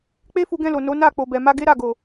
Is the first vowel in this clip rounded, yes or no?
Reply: no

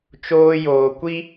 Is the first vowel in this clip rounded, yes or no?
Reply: yes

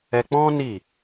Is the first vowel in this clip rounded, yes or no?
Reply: no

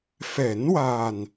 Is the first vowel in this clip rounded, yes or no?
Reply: no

